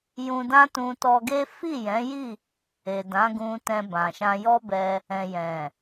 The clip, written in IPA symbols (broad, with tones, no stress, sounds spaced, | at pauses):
j ũ˧ d ã˦ t ũ˧ t ɔ˧ ɡ e˦ f i˦˨ j ɛ̃˨˦ j i˦˨ | e˨ d ã˨˦ ɡ ũ˧ t ɛ̃˧ b ã˨ ʃ ã˧ j ɔ˦ b ɛ˧ | ɛ̃˨ j ɛ̃˨